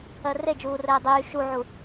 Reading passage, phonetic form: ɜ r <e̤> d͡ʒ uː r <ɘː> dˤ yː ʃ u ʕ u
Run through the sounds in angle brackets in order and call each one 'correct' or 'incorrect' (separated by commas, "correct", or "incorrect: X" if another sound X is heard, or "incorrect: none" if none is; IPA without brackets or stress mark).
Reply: incorrect: e, correct